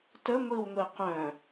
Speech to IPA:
təŋʷiwŋʷi qœ̃

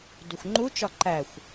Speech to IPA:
duxʷŋ͡ǃut͡ʃɒ ǃæxʷ

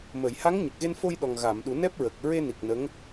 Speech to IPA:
mə˨˩˨jha˧˥ŋ ɲə˨˩k̚ɣe˧nfo˧jɗɔ˨˩ŋ ɣa˨˩˨m ɗu˨˩˦nɛ˦˥p̚ɹə˨˩k̚ ɹe˧ni˨˩k̚ nə˧˥ŋ

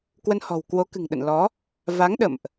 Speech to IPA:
kwə˧nhɔ̤˨˩wkwo˨˦kɨ̤˨˩ŋ ɗə̰˧˨nlɔ˨˦ | va˨˦ŋ ɗə̰˧˨mʔ

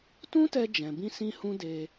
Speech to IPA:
tũ˦tɛ˧d͡ʒɛ̃˨bĩ˧ sĩ˦hũ˦de˧

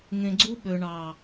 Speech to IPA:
ŋẽ˨ɡ͡ǀu˧ɓø˨ɳɑ˨

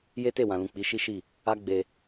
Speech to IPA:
je˦te˦˨wã˨lũ˨ k͡pi˨˦ʃi˦ʃi˦˨ | a˦ ɡ͡be˧

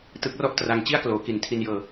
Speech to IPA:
tɯ˦˥k̚rɔ˥˩ʔtra˧ŋ t͡ɕi˥˩a̯kloː˩˦ki˨˩n tʰi˧njɤː˧

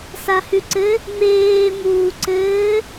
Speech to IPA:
sahʉǀɘ | ŋ͡meːmuː ǀɘː

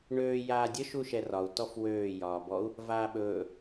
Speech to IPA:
ɳøː jaːdʲə ʃuʃɛrɒu̯ tɔfwøː jɒːbɔu̯ | vaːɓɵː

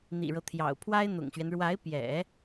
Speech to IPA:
n̪ḭ˨˩ɻɤ˦t̪ʰjɑ̰˨˩ʊ̯ pʰwa˥ɪ̯n̪ʊ̰˨˩ŋɕɥɛ˦n ɻwa˧˥ɪ̯pjɛ̰˨˩˦

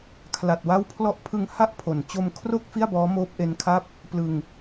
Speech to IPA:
kʰla˨˩t̚wa˦˥w pʰlɔ˦˥ʔpʰɯ˧ŋ ha˥˩ʔpʰo˨˩n t͡ɕo˧mkʰro˥˩k̚ fi˥˩a̯bɔː˦˥ moː˦˥p̚ʔe˦˥nkʰa˥˩p̚ | plɯ˧ŋ

